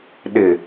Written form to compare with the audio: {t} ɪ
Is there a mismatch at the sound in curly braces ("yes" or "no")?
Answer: yes